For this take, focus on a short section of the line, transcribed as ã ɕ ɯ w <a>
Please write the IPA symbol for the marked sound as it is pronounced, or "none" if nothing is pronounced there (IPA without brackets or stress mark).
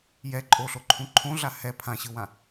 ã